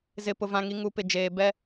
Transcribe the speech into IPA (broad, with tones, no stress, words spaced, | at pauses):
zɪ˨pʊ˨vã˨ŋi˨ ŋu˨ pɪ˨d͡ʒeː˨bɛ˦